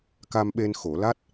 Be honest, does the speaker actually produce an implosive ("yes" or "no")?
yes